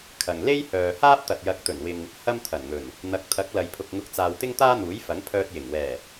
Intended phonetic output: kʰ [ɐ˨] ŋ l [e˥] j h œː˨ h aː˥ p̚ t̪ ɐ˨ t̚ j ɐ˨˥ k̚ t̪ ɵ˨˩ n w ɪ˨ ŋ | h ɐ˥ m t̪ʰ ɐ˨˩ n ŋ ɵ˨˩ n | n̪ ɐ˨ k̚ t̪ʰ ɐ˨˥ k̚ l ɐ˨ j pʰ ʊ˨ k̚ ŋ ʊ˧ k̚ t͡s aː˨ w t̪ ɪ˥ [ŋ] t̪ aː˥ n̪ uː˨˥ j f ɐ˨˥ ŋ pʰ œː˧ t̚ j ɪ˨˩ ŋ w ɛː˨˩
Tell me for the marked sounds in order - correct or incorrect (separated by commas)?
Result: correct, correct, correct